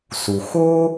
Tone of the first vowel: low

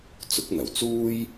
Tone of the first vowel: rising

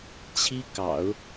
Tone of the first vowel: high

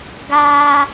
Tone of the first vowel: high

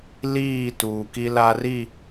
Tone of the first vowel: falling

